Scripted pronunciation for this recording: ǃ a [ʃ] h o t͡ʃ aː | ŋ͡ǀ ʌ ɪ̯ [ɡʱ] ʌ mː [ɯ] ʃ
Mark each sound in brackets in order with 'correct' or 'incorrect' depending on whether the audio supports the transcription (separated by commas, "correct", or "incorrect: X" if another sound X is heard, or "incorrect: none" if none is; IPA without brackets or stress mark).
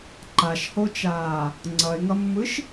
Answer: correct, incorrect: ŋ, correct